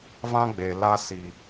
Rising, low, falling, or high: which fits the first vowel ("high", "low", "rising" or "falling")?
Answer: high